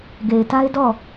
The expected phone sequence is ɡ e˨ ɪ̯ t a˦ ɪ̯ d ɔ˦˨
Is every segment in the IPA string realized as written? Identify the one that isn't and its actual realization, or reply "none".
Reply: none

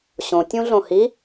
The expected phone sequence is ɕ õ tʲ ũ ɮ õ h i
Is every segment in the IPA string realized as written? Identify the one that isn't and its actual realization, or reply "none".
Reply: none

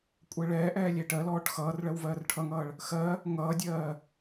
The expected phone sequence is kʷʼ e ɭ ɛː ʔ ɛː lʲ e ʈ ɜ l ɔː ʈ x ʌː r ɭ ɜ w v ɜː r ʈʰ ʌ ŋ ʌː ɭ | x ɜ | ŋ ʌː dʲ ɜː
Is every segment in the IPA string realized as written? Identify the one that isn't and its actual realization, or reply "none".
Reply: none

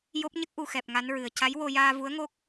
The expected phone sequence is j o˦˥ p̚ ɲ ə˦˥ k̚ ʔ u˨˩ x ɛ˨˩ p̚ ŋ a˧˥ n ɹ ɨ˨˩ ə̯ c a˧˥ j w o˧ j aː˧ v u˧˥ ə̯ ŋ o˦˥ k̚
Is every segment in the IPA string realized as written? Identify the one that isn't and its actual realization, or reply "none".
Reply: none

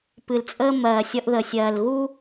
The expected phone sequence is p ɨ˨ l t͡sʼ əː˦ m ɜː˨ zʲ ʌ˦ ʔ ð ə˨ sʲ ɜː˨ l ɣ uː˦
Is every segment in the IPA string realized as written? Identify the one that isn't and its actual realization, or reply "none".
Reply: zʲ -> sʲ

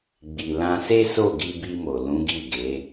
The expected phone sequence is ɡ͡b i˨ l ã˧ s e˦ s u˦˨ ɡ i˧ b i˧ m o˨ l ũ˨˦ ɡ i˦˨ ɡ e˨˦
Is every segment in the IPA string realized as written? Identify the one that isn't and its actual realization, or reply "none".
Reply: u˦˨ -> o˦˨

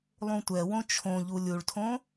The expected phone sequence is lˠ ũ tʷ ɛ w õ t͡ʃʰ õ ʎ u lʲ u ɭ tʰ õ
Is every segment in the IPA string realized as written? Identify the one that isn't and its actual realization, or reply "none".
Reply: none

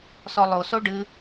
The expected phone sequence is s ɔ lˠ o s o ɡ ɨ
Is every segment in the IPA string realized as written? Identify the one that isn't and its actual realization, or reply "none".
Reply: ɡ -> ɖ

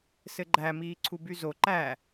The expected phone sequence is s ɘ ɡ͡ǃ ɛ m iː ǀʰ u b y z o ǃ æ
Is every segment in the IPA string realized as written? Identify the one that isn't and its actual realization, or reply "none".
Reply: ɛ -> æ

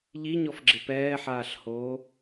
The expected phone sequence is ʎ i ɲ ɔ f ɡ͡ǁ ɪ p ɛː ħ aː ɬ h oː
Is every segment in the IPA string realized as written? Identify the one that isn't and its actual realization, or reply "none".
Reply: none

